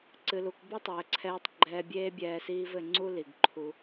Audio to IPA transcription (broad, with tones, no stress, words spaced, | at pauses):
ǀɨ˨lu˨kbu˦ tˤɘː˨ǀʰɛː˧tˤ ɡ͡ǃɛː˧bʲeː˦bʲɛː˧ siː˦vɘ˧ ŋ͡ǀu˦li˨ɡ ǃʰu˧